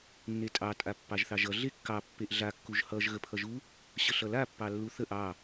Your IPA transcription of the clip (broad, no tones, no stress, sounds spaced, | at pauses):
nː e tʼ ɑ tʼ a pː ɑ ʒ θ ɑ ʒ ʌ ɮ e kː ɑ pː e ʔ ɮ a kː u ʒ h ʌ ʒ ɣ ə pʰ ʌ ʒ u | ɕ ə ɬ ʌ l a pː ɑ lː u θ ə ʔ ɑ